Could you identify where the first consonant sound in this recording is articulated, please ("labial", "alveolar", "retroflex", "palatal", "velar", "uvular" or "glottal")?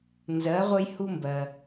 alveolar